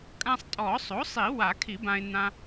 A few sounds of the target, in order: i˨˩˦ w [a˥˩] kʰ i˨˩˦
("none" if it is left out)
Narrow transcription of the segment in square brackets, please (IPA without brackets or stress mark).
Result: a˨˩˦